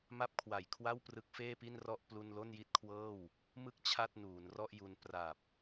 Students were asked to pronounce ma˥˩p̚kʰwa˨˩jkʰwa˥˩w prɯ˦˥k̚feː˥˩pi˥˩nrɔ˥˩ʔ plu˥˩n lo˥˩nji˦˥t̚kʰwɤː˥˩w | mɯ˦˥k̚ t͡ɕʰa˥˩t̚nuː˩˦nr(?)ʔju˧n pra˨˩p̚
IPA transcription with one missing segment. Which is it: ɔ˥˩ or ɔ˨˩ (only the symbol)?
ɔ˥˩